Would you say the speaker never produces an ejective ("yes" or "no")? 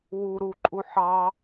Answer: no